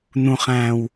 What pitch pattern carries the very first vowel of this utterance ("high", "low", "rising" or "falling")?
low